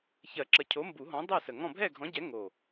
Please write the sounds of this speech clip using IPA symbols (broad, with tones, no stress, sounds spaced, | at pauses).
ç ɜ˨˩˦ ǁ ə˨˩ cʰ o˨˥ m b u˨˩˦ ɦ ɔ̃˨˥ dˤ ɜ˥˨ s ə˨˩ ŋ ɔ̃˥˨ bʱ ɛ˥˨ ɡʱ ɔ̃˨˥ ɟ ɛ˨˥ ŋ o˨˩